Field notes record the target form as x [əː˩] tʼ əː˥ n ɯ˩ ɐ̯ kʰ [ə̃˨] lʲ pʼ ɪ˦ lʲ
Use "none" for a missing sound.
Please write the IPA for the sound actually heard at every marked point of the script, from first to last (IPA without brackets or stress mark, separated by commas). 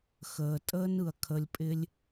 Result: əː˩, ə˨